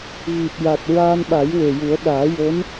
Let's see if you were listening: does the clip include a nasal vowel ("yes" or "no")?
no